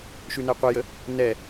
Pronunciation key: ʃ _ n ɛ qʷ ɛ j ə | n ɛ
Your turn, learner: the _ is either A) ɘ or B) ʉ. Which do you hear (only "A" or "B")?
B